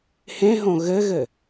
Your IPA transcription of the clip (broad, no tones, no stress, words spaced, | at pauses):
hẽɦõ ɣɘɣɘ